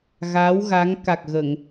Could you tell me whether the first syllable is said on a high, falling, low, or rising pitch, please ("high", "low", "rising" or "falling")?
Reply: rising